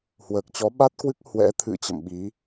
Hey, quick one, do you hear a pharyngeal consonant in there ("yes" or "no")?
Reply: no